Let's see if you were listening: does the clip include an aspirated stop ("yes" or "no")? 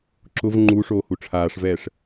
yes